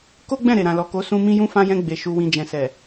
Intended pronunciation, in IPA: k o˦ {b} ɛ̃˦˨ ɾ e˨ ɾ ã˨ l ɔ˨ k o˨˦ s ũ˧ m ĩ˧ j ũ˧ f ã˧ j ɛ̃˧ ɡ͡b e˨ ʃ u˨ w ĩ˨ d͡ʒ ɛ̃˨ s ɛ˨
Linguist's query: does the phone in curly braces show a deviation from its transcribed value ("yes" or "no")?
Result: yes